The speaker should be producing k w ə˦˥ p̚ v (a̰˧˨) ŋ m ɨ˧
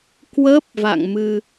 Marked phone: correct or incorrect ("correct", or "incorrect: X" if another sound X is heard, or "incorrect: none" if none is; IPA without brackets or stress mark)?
correct